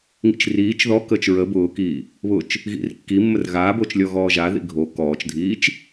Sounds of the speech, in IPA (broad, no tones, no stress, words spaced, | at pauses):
ŋḭt͡ʃriːt͡ʃ ðɔkəːt͡ʃ ɹə bʊːkiː | βʊt͡ʃ | ɣḭrkːimːər ɣaːbot͡ʃ lʲɔɣɔːʒa ðḭɡʱo kɔːt͡ʃdʱiːt͡ʃ